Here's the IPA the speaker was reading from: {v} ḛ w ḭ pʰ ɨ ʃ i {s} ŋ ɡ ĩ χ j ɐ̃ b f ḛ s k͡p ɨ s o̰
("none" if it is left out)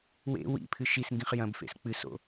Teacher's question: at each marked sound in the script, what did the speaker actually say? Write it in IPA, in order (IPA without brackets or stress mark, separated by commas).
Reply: w, s